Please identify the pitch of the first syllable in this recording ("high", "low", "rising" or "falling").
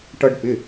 high